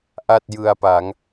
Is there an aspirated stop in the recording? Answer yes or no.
no